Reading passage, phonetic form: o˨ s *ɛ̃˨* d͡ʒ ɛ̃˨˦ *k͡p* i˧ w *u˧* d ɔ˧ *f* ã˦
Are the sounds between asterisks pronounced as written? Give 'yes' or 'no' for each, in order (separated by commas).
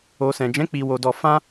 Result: yes, yes, no, yes